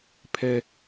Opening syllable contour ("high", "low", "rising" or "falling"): high